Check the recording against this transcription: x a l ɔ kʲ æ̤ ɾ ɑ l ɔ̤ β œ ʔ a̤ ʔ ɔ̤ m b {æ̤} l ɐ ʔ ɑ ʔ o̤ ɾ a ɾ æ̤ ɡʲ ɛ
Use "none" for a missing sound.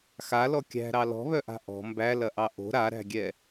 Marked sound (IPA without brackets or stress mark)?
æ